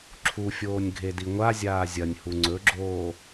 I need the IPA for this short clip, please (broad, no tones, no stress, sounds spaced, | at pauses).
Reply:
ǁʰ u fʲ oː nʲ ɡʱ e d i ŋʷ a zʲ aː zʲ ɐ nʲ h u ŋ͡ǀ ɵ ɡ͡ǁ oː